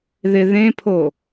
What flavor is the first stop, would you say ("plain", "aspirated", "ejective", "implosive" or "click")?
aspirated